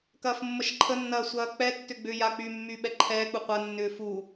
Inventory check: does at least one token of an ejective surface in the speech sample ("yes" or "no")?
no